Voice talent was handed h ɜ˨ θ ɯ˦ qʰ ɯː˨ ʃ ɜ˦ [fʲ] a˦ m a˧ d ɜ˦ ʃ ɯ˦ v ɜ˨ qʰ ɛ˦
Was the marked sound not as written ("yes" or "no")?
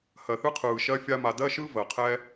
no